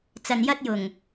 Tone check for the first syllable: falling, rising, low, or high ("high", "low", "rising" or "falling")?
low